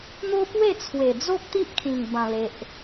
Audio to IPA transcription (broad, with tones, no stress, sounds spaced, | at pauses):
n̪ o˦ p w e˥˧ t͡sʰ w e˨˩ d͡z o˦ k̚ t̪ i˦ ʔ kʰ ĩ˨˩ ŋ b ã˨˩ l e˨ ʔ